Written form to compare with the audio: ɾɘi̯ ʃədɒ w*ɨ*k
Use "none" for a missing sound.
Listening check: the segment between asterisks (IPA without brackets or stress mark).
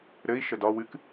ɨ